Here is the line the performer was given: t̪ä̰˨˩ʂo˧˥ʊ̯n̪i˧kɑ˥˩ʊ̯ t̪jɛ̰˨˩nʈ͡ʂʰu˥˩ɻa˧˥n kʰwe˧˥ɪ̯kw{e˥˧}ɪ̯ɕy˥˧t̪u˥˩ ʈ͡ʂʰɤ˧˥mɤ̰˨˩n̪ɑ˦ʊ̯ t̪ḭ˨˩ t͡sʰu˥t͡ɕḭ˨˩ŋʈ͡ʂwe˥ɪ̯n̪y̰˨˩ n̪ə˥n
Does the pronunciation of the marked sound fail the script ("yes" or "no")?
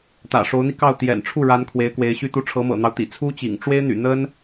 yes